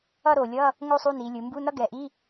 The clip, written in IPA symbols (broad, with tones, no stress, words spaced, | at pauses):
ʌ˥˧ ɾo˨˩lʲʌ˧˥˧ | ŋo˥sˤu˧˥˧ni˩˧lʲɯ˩˧ mbu˧˥˧nʌ˥ ɡɛ˨˩ ʔi˧˥˧